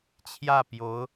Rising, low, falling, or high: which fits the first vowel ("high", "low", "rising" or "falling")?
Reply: falling